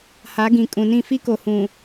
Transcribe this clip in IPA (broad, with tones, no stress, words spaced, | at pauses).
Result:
ha˨˦ɡĩ˨ kʼũ˨nĩ˦˨ fi˦ko˨hũ˨